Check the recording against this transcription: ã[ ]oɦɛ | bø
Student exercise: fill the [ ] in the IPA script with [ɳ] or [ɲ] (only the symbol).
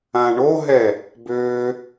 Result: ɳ